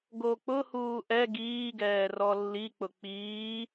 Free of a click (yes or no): yes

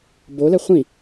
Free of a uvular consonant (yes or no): no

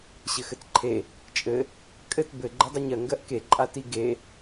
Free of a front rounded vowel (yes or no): yes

